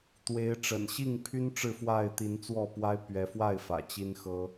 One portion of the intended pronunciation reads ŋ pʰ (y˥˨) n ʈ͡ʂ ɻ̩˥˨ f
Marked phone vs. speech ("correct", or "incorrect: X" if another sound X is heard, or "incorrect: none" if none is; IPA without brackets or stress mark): incorrect: y˦